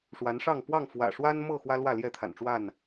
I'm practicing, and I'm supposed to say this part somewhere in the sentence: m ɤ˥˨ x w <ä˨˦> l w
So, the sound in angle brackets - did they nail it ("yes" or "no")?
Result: no